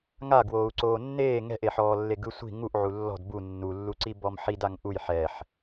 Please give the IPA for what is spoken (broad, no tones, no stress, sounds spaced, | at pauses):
ŋ a ɡ w oː u̯ ǀ oː nː eː ŋ ɛ̤ ʔ e ħ ɔː lː e ɡ ɯ sʷ i̤ ŋ u ʔ ʕ u lː ɔ̤ d b u nː u lː u ǀ i b ɔ m ħ i d a ŋ ʔ u j ħ ɛ ħ